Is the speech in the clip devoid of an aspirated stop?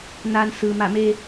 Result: yes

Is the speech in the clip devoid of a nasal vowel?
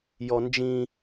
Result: no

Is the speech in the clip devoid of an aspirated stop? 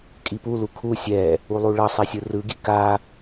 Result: no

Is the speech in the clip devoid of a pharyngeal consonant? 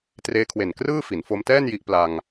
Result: yes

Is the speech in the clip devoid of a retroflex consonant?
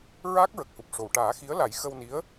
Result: no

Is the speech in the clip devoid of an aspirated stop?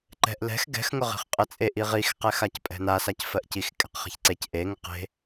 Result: yes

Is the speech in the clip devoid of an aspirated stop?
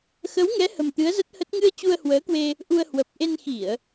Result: yes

